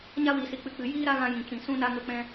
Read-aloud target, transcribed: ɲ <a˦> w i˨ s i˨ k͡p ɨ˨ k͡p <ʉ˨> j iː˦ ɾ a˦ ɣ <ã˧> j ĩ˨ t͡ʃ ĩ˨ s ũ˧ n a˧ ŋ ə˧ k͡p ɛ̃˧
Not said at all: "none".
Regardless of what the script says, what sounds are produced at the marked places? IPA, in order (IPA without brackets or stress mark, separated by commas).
a˦, ɨ˨, ã˧